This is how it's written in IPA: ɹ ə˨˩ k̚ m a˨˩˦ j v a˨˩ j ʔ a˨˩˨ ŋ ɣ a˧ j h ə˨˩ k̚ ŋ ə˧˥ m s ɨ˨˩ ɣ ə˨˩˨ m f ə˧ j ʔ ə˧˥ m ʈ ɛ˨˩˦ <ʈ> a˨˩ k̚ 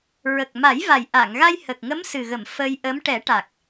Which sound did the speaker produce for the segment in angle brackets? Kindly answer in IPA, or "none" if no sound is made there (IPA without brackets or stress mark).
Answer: ʈ